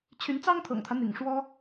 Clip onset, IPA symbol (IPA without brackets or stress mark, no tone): t͡ɕʰ